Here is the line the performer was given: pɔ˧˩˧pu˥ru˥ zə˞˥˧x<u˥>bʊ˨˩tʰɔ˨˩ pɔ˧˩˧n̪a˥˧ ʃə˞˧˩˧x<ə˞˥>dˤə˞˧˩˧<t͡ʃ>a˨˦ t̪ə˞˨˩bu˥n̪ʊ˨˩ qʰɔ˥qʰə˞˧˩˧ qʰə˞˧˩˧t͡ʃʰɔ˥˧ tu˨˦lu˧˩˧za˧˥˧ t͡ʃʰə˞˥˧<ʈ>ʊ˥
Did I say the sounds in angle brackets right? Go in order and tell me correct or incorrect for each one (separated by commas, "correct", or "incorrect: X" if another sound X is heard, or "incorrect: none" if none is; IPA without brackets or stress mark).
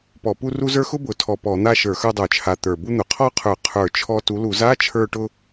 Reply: incorrect: ʊ˥, incorrect: ə˞˥˧, incorrect: t͡ʃʰ, correct